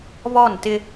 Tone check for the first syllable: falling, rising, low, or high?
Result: falling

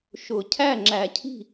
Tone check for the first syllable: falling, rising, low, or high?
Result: low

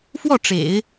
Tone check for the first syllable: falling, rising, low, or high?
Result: falling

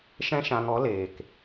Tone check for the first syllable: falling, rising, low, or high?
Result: high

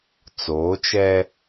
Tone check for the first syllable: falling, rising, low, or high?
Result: rising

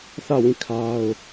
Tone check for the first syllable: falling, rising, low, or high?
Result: falling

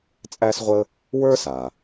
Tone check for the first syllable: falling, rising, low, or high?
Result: high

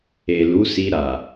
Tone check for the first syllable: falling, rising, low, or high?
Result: low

